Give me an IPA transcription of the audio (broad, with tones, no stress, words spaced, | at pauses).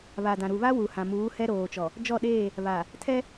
βa˨dã˨ ɾu˨βa˦ wu˨hã˨muː˨˦ hɛ˦ɾoː˨t͡ʃɔ˨ | d͡ʒɔ˦˨ɗeː˦˨ | βa˨ | tʰɛ˦